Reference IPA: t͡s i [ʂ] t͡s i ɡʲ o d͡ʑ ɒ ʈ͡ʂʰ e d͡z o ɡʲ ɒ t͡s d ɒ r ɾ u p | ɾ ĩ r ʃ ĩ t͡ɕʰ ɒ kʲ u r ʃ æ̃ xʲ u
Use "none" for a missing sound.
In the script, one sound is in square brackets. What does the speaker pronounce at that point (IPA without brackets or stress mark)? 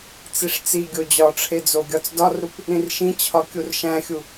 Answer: ʂ